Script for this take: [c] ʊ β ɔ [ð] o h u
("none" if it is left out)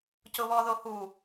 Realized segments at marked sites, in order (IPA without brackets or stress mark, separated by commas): c, ð